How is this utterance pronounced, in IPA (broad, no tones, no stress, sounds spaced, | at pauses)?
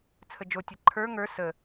t͡sʰ ə d͡ʒ o tʲ ɐ ǃʰ ə˞ ŋ ə˞ s ə